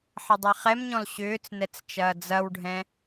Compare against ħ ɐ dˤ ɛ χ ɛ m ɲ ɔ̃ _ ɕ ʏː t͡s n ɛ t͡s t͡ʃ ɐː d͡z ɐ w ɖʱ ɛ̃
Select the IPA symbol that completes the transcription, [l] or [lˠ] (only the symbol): l